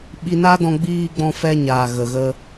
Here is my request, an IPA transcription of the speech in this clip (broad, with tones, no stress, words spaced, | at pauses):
ɓi˧na˦dɔ̃˧ ɡ͡biː˧ɡ͡bɔ̃˧fɛ˧ɲaː˨ ɣə˨ɣə˧